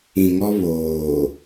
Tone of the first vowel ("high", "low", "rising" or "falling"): low